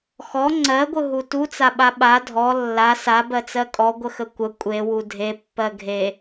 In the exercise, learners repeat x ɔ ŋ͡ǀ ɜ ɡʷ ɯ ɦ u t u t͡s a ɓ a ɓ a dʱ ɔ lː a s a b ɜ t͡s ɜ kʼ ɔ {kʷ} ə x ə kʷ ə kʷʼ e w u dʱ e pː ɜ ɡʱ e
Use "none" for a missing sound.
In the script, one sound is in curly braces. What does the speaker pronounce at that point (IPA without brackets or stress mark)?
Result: ɡʷ